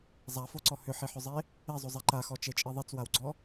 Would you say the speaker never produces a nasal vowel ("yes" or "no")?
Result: yes